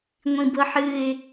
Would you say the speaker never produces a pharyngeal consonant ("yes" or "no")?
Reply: no